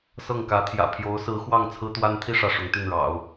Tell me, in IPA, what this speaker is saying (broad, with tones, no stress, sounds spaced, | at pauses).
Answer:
s ɤ˥˩ ŋ k ä˧˥ t̪ʰ j ä̰˨˩ pʰ j o˧˥ ʊ̯ s ɹ̩˧˥ x w ɑ˥˩ ŋ t͡sʰ ɹ̩˥ t̪ w a˥ n t̪ʰ i˥˧ ʂ ä˥˩ ʂ ʊ˧˥ ŋ t̪ y˥˩ n ɻ ɑ̰˨˩˦ ʊ̯